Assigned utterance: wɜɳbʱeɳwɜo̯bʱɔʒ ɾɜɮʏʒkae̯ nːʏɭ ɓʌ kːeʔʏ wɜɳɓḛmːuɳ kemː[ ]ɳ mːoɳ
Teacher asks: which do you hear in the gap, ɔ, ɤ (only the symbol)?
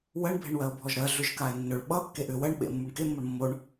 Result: ɤ